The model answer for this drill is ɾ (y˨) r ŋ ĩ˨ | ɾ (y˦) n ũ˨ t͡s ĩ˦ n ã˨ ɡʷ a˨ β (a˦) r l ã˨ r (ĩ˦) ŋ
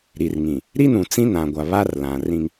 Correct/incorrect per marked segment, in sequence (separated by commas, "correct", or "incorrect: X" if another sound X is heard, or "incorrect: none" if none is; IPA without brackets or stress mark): incorrect: i˨, incorrect: i˦, correct, correct